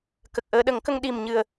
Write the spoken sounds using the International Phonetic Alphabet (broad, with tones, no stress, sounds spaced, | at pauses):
k ə˨˩ k̚ ʔ əː˧ ɗ ə˨˩˦ ŋ k ə˧ ŋ ɗ i˨˩ m ɲ ɨ˨˩ ə̯